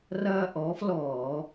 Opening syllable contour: high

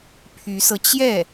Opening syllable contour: rising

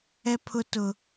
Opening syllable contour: high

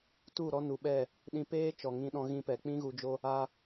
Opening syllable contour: falling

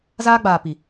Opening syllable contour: high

